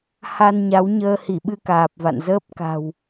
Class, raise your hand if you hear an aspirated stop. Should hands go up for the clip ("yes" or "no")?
no